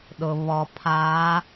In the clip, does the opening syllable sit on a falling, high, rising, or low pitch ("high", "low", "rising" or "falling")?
low